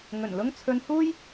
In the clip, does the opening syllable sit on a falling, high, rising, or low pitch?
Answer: low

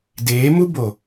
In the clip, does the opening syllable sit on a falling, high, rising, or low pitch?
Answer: rising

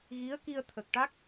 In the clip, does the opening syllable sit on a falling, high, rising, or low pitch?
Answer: rising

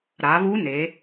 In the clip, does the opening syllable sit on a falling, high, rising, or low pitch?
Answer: rising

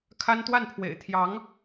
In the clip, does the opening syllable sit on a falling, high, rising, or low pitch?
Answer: high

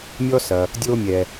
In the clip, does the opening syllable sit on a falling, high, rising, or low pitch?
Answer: high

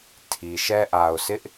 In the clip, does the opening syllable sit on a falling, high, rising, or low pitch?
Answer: low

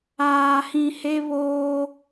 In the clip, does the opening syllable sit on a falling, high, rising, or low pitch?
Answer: low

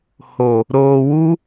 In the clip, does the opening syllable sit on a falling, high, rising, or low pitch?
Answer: low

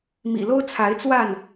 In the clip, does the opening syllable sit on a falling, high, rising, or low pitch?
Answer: low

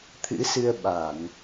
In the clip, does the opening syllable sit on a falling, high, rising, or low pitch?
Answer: rising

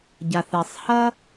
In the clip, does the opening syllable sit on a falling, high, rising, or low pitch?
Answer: low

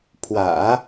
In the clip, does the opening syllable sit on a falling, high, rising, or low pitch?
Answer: low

